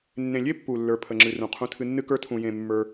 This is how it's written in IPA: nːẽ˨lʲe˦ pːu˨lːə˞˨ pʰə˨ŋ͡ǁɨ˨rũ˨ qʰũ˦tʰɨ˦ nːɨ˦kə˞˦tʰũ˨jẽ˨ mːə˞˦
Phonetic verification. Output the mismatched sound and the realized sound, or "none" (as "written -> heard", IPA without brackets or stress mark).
none